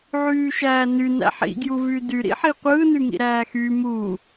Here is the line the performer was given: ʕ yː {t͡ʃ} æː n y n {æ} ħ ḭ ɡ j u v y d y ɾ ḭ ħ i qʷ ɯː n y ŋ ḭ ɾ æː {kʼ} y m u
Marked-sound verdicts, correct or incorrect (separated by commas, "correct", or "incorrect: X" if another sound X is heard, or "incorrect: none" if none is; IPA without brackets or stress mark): incorrect: ʃ, incorrect: æ̰, incorrect: x